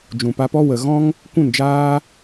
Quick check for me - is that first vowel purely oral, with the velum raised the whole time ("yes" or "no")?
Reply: no